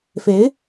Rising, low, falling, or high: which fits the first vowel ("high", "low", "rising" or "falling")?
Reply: rising